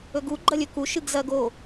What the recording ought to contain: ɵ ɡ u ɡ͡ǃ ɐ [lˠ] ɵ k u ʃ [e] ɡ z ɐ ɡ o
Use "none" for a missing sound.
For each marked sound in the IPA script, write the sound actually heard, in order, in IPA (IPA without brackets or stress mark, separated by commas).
lʲ, ɨ